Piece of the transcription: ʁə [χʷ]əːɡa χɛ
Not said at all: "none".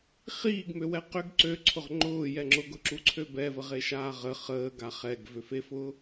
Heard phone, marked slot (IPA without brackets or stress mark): χ